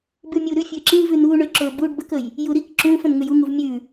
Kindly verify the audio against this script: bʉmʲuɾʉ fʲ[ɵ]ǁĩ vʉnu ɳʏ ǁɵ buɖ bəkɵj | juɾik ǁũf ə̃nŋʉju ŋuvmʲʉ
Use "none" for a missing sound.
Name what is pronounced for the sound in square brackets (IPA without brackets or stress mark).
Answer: ø